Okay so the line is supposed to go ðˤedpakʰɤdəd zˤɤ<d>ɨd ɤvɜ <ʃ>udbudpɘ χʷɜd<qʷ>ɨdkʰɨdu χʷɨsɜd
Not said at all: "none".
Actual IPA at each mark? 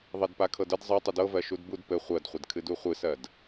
tˤ, ʃ, χʷ

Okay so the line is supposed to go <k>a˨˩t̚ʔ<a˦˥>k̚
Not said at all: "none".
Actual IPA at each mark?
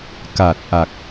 k, a˨˩

